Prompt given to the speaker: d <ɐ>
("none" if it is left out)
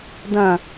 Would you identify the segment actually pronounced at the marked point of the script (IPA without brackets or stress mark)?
ɐ̃